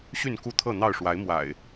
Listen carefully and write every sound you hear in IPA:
ɕ y˥˨ n k u˥˨ t̪ʰ ɤ˥˨ n̪ ɑ˥˨ ʊ̯ ʂ w a˨˦ ɪ̯ m w a̰˨˩ ɪ̯

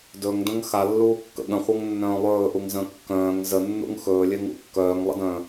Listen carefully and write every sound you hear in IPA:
d ɵ ŋ d ə̃ ŋ x a lː uː kː ə̰ ɠ ə̃ χʷ ɤ ŋ nː œ̃ː lˠ ɵː ʔ u ŋ z ə̃ː kː œ̃ː ŋ z ə nː ṵ ŋ x ɵː lʲ e ŋ ṵ kː œː ŋ lˠ ə̰ d œ̃ː

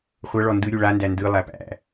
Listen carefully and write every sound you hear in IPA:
χʷ ʌ ɭ ɔ n d ɯ ɾʲ u ɭ a n d æ n d ɯ lˠ æ p æ̰

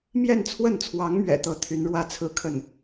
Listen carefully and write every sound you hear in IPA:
m j ɛ˥˧ n t͡sʰ w ə˥˩ n t͡sʰ w ɑ˧˥ ŋ m ɥ ɛ̰˨˩ t̪ ɤ˥˩ t̪ʰ y˧˥ n ɻ w ä˥˧ t͡sʰ ɹ̩˥˧ kʰ ə˥˩ n

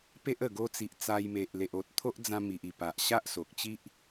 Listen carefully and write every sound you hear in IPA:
p e˦ ʔ ə˨˩ ɡ o˧ t͡s i˨ ʔ t͡s a˧ j m e˨ ʔ l e˨ ʔ o˨ t̚ t̪ʰ o˦ ʔ d͡z ã˧ m i˨ ʔ i˨˩ p a˨ ʔ ɕ a˦ ʔ s o˨ k̚ t͡ɕ i˦ ʔ

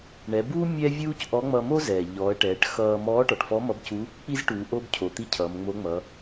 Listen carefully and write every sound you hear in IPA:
ɳ ɛ˩˧ b uː˥ mʲ ɛ˥ vʲ uː˥ c ʔ ɔ˧˥ ŋ͡m ʌ˧ m o˥ z ɛː˩ ʎ ɔː˩˧ ə̯ ʈ ɛː˩˧ ʈ x ʌː˧ m ɔː˧˥ ʈ ɔ˩ ʈ f ɔ˧˥ m ʌ˧˥ b c u˧˥ | k͡p i˥ z ʈ uː˩˧ ʔ o˥ b cʰ o˩ t̪ i˥ cʰ ʌː˩˧ m ŋ͡m o˧˥ ŋ͡m ʌ˩˧

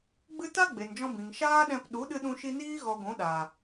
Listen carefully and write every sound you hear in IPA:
ɡ͡b ɨ˦ t a˦ ɡ͡b e˨ n d͡ʒ ɔ̃˧ b ĩ˨ ŋ ʃ aː˦ ɗ ɛ̃˧ p ɗ u˨˦ ɗ ɨ˧ ɗ ũ˧ ʃ i˧ n iː˦ ɣ ɔ˧ ɡʷ ũ˨˦ ɗ aː˨

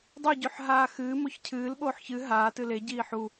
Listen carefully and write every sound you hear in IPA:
dˤ ɵ ɟ ʉ ħ ɦ aː x ɨː m o ç cʰ ɨː l ɓ oː ħ ç ɨ ɦ aː t ɨ l e ɟ iː ħ u

